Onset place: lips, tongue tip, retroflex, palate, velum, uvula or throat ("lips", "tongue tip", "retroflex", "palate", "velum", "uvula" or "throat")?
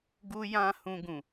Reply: velum